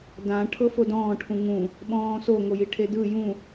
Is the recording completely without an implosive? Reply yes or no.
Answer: no